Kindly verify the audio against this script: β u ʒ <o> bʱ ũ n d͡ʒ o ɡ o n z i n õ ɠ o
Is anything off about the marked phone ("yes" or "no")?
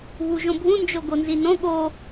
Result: yes